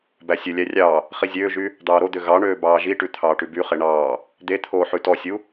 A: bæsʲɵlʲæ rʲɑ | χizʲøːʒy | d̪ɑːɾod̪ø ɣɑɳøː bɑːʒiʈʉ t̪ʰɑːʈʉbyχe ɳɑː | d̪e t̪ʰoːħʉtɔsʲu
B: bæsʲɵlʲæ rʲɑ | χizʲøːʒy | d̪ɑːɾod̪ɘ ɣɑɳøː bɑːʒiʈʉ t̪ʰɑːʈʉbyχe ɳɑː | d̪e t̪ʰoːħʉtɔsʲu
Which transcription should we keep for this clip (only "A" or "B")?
A